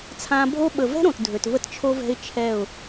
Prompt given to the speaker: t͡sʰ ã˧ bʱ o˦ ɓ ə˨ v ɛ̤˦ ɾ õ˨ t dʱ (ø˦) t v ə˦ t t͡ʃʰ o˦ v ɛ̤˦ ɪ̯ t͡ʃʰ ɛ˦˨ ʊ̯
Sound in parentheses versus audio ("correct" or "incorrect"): incorrect